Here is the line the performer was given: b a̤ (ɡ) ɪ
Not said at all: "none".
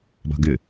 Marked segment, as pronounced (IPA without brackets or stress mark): ɡ